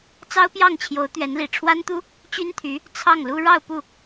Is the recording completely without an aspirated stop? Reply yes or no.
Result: no